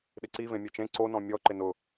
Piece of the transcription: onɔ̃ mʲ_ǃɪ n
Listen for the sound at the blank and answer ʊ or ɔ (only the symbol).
ɔ